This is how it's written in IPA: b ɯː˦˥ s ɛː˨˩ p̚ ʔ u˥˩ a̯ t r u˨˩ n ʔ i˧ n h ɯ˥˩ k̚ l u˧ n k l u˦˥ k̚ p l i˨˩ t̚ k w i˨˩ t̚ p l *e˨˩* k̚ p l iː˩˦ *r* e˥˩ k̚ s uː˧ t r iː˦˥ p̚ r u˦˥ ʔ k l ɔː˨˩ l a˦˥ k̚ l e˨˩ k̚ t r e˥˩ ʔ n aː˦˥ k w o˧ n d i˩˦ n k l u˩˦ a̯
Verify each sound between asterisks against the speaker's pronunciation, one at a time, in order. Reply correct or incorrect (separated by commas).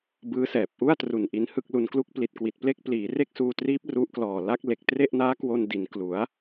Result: incorrect, correct